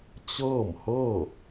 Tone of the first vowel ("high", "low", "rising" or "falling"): falling